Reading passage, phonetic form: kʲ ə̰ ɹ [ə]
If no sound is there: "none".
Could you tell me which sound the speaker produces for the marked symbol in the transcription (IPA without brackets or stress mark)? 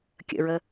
ə